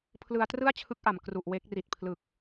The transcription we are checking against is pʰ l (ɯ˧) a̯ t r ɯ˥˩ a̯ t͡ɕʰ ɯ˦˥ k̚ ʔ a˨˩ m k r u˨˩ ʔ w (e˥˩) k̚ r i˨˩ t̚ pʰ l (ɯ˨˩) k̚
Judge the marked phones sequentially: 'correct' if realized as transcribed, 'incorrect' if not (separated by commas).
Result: correct, incorrect, correct